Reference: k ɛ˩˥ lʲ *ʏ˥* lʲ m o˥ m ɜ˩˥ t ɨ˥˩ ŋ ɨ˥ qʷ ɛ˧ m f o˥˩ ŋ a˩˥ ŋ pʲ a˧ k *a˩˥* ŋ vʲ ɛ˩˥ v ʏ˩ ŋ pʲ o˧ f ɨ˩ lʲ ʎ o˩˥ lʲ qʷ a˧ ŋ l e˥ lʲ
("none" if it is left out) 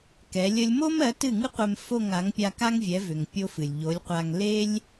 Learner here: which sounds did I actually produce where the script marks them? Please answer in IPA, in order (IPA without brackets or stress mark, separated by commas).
ə˥, a˥